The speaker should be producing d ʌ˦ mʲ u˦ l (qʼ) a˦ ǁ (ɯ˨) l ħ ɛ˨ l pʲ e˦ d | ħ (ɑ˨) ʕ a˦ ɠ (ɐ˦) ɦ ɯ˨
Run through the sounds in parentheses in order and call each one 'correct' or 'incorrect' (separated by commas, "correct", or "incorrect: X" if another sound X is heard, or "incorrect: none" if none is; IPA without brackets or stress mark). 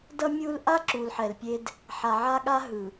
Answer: incorrect: ʔ, incorrect: u˨, incorrect: a˨, incorrect: a˦